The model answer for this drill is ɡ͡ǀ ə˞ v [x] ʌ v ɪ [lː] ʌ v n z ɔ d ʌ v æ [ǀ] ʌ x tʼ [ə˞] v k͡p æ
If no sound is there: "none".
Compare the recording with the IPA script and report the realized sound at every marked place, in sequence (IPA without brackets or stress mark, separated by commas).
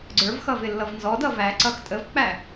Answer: x, lː, ǀ, ə